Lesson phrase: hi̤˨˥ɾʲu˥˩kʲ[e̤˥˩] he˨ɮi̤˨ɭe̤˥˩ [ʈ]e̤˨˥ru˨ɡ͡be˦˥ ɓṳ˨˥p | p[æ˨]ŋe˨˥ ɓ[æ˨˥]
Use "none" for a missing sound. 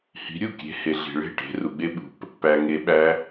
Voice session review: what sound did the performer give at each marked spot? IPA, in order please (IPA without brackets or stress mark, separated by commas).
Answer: e̤˨˥, ʈ, æ˨, æ˦˥